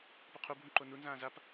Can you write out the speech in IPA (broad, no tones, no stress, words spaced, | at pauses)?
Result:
poqʰu bʱũǃonu nzãːzap